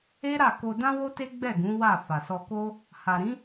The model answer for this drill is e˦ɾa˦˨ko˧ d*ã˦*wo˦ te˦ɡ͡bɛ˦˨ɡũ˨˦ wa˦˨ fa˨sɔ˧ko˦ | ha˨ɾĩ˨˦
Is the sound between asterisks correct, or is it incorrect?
correct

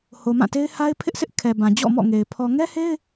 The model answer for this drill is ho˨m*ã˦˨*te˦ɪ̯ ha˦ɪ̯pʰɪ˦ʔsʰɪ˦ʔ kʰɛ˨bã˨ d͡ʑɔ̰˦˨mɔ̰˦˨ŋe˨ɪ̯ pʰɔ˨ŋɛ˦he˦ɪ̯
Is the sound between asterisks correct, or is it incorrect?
correct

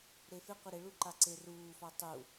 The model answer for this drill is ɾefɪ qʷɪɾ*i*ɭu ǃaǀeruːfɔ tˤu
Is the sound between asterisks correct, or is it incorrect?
incorrect: ɪ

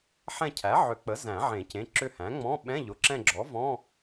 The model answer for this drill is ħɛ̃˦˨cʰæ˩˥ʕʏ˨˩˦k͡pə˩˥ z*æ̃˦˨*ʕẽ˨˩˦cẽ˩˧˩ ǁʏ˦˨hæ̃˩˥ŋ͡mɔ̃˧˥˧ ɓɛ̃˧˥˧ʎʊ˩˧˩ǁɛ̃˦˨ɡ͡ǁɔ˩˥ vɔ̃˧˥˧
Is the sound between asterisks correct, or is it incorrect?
incorrect: æ̃˨˩˦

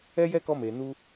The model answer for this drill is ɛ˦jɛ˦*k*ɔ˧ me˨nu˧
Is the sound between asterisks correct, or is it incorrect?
correct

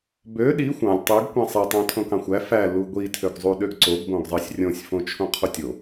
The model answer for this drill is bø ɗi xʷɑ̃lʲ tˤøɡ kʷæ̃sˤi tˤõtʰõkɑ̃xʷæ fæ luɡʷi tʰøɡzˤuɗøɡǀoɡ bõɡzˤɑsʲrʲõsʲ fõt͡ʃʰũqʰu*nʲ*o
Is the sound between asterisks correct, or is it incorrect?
incorrect: tʲ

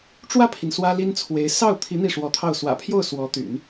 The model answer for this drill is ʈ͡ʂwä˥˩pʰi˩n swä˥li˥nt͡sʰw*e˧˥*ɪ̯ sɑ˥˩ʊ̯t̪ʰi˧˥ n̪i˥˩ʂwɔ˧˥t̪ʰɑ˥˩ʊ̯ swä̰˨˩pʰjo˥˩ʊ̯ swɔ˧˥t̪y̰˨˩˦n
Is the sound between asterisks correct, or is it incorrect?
correct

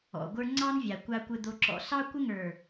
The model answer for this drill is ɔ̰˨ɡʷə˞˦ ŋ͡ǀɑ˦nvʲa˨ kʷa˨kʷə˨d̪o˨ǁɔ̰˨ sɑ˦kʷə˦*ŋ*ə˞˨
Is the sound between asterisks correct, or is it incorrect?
correct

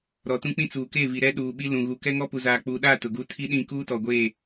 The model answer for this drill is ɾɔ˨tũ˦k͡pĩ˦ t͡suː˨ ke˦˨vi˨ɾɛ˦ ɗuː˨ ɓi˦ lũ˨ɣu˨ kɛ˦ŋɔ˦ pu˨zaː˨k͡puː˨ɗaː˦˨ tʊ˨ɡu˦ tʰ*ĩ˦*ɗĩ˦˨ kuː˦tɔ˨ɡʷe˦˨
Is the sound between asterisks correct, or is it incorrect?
incorrect: i˦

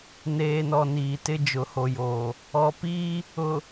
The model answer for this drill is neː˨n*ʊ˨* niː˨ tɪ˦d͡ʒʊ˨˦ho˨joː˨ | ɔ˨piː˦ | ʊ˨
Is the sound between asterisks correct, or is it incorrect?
incorrect: ɔ˨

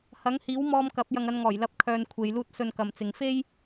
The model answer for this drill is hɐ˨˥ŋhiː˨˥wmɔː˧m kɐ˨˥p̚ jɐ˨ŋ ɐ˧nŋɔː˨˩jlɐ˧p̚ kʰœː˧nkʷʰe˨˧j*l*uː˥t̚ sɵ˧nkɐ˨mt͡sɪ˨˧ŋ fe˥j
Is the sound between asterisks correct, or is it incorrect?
correct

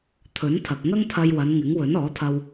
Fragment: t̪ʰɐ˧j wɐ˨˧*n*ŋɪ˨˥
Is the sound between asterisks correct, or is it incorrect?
correct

